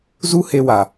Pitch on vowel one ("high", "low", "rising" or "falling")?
high